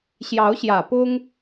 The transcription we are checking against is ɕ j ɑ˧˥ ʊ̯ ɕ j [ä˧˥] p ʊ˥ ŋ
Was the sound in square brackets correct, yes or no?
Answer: no